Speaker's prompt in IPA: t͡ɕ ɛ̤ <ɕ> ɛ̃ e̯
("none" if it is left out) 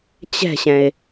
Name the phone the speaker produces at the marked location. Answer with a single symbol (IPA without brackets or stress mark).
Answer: ɕ